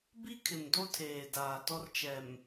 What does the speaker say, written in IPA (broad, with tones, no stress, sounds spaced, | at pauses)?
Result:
b i˦ kʰ ɪ˨ m d o˦ tʰ eː˨ d aː˨ t ɔ˦ r t͡ʃ ɛ˨ m